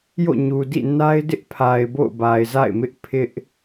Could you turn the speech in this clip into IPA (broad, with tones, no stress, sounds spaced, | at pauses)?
j o̰˦˨ ɲ u˨ d ḭ˦˨ n a˦ ɪ̯ d ɪ˦ ʔ pʰ a˨ ɪ̯ b o̰˦˨ ʊ̯ b a˨ ɪ̯ z a̰˦˨ ɪ̯ m ɪ˦ ʔ pʰ ɪ˦ ʔ